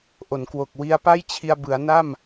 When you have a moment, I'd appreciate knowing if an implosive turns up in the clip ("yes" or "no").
no